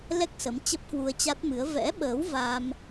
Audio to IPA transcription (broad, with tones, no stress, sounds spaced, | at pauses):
l ɛ˦˥ k̚ s ə˨˦ m t͡ɕ ə˦˥ p̚ k w u˧ ə̯ t͡ɕ a˦˥ t̚ m ɨ˨˦ ə̯ v ɛ̰˧˥ ɓ əː˨˦ w v a˧ m